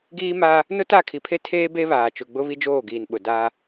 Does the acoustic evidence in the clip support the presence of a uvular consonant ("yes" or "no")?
no